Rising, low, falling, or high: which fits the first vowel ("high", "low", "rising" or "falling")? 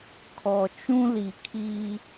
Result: low